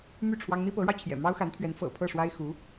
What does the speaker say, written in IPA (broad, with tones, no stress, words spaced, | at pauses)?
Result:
my˥˩ ʈ͡ʂʰwɑ˥ŋ n̪i˥pɤ˧˥ɻɑ˧ʊ̯ t͡ɕʰjɛ̰˨˩mɑ˥ʊ̯xa˧˥nt̪ʰɥɛ˧˥n fɤ̰˨˩pʰɤ˥˩ ʂwa˥ɪ̯xu˧˥